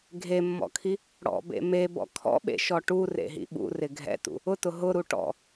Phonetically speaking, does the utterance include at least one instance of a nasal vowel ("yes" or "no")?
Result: no